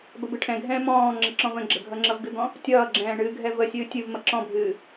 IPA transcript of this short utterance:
b ə b ɨ ʈʰ ɛ̃ ɡʱ ɛ̃ː m ɔ̃ː ŋ͡ǁ ʌ ǁ ɔ̃ v ə̃ ɡ͡ǁ ə ɡʱ ʌ ŋ͡ǁ ʌ v ɡ ɨ ɡ ɔ̃ | tʲ ʌː ɡ͡ǁ ɛ̃ː ɳ ɨː ɡʱ ɛ v ə sʲ ɨː tʲ ɨ v m ʌ ǁ ɔ̃ bʱ ɨː

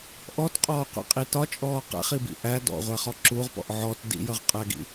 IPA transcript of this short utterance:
ʔ ɔ t qʼ ɔː qʷ ḭ qʼ i t ɒ t͡ʃʼ ɔː q æ̰ χ i b ḭ ʔ æ d ɔ̰ ʁʷ æ χ ɔ ǁ u ʁ p ɔ̰ ʔ ʕ ɔ t d ḭ j ʌ ʁ qʼ æ ɡ ḭ

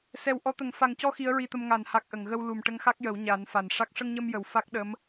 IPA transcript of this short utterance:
s ɛ˨˩ w ʔ ɔ˧˥ t̪ ə˨˩ ŋ f a˨˩ ŋ c ɔ˧ x i˧˥ ə̯ ɹ i˧ t̪ ə˧ m ŋ a˨˩˨ n h a˨˩ k̚ ʔ ə˨˩˨ ŋ ɣ ə˧ w l u˨˩ m ʈ ə˧ ŋ x a˦˥ k̚ j ə˨˩˦ w ɲ a˨˩˦ n f a˨˩ n ʂ a˦˥ k̚ ʂ ə˧ ŋ ɲ ə˧ m j ə˨˩ w f a˦˥ k̚ ɗ ə˧˥ m

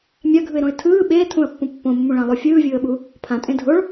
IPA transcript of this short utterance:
mʲ a ɡʱ ɯ ɪ̯ ɾ õ ɪ̯ tʰ ɯː ɓ eː tʰ ũ ə̯ pː ũ pː õ mː ũ ɭ ã lˠ o fʲ ɯː vʲ ɯː ə̯ ɓ u | pʰ ã tʼ ẽ dʱ o ɭ

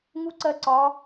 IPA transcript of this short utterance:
ŋ u˥ ǀ ɜ˥ ǀ ɒ˧˥

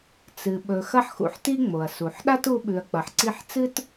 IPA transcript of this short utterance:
t͡s ɨ˨ ɓ ɵ˨ x ɐ˦ ħ x ṵ˨ ħ t i˦ ŋ͡m o˩ ɐ̯ s u˩ ħ ɗ a˥ t u˦ ɓ ʉ˨ ɐ̯ k͡p ɐ˨ ħ ǀ i˦ ħ t͡s ɨ˥ t

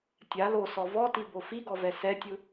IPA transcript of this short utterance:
tʲ a l o s ɔ v ɔ t i b o f i ɡ ɔ v ɛ s ɛ tʲ ɯ

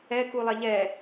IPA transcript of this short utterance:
ɛ k u lˠ ɛ ʎ ɛ

